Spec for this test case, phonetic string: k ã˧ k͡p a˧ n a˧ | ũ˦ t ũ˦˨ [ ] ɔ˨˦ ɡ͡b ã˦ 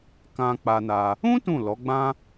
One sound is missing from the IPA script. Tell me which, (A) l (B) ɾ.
A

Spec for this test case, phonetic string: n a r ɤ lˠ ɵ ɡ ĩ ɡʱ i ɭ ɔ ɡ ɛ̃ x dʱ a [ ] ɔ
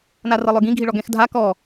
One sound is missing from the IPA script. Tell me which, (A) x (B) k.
B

